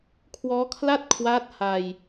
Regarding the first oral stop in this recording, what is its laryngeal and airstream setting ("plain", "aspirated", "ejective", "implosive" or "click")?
aspirated